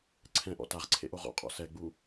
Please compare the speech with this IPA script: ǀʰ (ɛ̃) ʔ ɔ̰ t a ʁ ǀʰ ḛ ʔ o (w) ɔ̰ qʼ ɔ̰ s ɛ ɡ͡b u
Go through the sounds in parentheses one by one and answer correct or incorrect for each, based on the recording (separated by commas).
correct, incorrect